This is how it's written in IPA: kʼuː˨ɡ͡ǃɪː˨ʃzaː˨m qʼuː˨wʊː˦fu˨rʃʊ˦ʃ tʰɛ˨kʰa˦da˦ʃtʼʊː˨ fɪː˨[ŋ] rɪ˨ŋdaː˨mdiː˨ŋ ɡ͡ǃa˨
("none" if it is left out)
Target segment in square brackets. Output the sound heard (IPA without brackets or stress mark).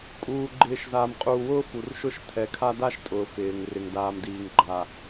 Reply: ŋ